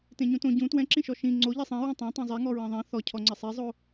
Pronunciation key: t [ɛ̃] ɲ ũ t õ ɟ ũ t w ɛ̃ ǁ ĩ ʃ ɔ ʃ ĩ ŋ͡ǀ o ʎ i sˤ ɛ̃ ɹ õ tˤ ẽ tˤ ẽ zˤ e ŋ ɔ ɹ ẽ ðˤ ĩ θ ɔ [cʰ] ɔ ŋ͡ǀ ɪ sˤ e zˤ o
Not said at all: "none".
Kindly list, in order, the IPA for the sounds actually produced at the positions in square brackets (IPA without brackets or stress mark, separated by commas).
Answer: ẽ, cʰ